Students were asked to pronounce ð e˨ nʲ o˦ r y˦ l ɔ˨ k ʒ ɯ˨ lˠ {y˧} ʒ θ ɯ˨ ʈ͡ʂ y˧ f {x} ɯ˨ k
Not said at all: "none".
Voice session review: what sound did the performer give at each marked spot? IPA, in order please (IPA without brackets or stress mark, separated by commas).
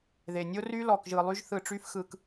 y˧, x